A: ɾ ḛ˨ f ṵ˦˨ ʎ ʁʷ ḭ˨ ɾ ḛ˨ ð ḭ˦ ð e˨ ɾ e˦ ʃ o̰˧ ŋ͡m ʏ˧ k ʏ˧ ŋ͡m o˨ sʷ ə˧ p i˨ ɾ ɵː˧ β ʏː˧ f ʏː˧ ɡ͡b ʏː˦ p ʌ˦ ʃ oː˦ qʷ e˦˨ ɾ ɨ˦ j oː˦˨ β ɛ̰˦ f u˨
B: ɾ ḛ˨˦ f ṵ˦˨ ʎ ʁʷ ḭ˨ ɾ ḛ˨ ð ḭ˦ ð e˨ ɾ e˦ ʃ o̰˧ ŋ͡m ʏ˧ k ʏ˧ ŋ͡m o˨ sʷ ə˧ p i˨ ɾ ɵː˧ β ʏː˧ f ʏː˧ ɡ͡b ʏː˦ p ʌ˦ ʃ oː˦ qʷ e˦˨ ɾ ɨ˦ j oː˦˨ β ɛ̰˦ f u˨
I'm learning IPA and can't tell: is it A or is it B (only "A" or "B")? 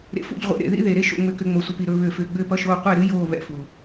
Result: A